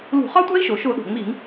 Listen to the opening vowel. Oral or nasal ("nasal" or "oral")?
oral